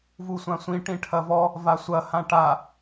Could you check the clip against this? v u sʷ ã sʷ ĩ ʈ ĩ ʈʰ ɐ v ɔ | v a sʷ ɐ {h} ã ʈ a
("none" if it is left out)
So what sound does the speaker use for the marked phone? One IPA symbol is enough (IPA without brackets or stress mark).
h